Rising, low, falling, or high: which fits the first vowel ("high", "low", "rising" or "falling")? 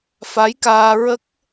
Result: rising